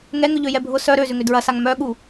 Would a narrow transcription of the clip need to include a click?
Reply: no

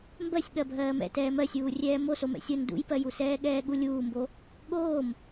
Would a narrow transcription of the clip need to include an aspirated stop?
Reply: no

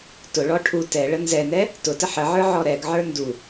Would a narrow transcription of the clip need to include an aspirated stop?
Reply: yes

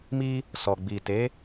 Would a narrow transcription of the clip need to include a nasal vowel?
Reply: no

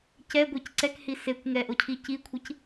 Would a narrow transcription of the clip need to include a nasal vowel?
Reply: no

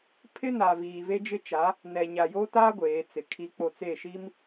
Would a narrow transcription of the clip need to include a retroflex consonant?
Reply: no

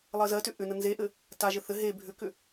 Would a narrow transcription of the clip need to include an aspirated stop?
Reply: no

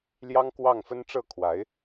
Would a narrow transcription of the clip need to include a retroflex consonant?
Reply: yes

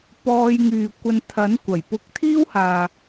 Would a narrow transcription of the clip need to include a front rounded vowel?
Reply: yes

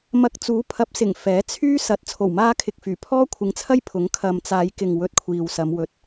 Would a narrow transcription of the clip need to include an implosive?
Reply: no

